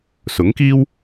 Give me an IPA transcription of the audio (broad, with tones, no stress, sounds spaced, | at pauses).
s ʊ˨˥ ŋ k iː˥ w